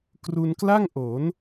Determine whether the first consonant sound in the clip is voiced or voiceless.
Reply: voiceless